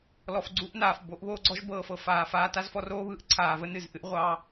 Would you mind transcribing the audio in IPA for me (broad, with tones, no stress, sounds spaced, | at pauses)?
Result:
l ɔ˨ f ɡ͡ǀ u˦ ʔ n aː˨ f b o˨˦ ʔ β oː˦ ɡ͡ǀ ɔ˦ ʒ b ɤː˨ f ɤ˨ f aː˨ f aː˧ t a˦ z f ɔ˧ r oː˦ β ɯː˧ ʔ ǀʰ aː˨ v ə˦ n ɨ˨ z ʔ ɨ˦ ʔ ʁʷ ɑ˦